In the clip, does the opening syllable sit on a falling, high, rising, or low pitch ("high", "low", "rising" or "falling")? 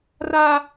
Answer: high